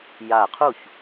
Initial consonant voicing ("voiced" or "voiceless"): voiced